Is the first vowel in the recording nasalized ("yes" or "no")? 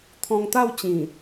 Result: yes